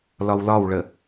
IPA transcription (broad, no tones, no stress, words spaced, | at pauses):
lɒwlɒwɭə